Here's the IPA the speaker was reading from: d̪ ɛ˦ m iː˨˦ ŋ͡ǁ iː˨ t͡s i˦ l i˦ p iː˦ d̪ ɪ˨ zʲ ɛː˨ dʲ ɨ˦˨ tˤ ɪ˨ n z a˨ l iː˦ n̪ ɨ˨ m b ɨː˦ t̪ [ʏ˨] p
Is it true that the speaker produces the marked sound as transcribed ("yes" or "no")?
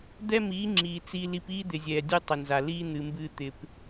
no